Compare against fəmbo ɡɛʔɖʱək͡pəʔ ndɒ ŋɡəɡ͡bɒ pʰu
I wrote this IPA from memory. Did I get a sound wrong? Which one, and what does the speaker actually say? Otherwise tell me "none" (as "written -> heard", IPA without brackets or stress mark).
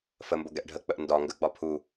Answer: none